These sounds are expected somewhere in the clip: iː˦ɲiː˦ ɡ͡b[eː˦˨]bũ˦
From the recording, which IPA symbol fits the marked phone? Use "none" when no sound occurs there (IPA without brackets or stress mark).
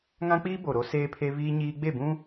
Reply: e˦˨